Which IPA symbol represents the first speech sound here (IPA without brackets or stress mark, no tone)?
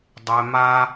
dˤ